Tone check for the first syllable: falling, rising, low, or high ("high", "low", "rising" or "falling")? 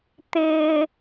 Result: high